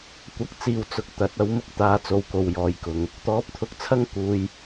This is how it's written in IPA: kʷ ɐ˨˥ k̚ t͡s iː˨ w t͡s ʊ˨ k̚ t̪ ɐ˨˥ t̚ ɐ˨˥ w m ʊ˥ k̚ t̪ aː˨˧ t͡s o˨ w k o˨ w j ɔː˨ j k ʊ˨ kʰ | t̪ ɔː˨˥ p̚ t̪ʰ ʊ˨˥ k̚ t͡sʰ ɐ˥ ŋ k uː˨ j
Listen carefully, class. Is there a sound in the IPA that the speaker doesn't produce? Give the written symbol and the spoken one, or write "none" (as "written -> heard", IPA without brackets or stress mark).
kʰ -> ŋ